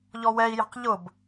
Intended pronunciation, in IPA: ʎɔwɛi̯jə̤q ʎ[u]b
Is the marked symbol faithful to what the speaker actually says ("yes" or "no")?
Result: no